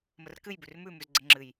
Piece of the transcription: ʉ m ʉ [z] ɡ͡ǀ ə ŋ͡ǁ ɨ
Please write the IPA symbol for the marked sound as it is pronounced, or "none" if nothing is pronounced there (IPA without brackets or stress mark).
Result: z